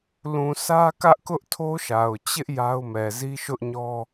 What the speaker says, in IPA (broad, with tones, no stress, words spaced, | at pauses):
lũ˨sä˦kä˦ʔkʊ˦ʔ tʰo˦ʃa˨ʊ̯ t͡ɕɪ˦ʔ ja˦ʊ̯mɛ˨ zi˦ʃʊ˦ʔɲɔ˦